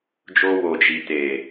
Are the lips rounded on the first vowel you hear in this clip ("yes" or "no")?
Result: yes